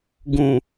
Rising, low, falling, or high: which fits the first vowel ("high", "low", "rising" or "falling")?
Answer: low